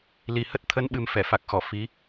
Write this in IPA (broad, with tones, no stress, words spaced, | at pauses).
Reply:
li˨˩hə˦˥t̚ t̪ʰə˨˦nɓɨ˨˩m fɛ˧˩fa˨˩k̚xɔ˧˩ fi˨˦